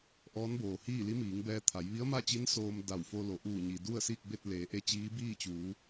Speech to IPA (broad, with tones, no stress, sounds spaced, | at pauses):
ʔ ɔː˧˥ n b oː˩ h iː˥˨ l i˧˥ m iː˩˧ ŋ b ɛː˧ t̪ʰ a˩˧ j ʋ i˧˥ ə̯ m a˥˨ t͡ɕ i˧˥ n s oː˧ m d a˧˩ w f o˧ l o˩ ʔ uː˧˩ ɲ i˩ d u˥˨ ə̯ s iː˥˨ k̚ b e˥˨ t̚ l eː˩˧ ʔ e˧ t͡ɕ iː˧˥ b iː˥˨ t͡ɕ uː˩˧